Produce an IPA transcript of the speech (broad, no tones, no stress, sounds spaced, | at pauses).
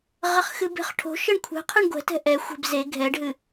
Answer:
ʁ ɐ χ x ɨ b e̤ χ ʈʰ o̤ ʃ ɘ ɳ kʷʰ ɛ̤ qʰ ɨ ɳ ɡʷ ɛ̤ t ɛ̤ ʔ ɛ xʷ e̤ b z e ɡʱ ɛ ɖ ɦ ɨ